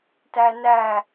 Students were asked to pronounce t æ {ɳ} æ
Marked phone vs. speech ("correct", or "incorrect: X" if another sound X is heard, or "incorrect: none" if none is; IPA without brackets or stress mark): incorrect: n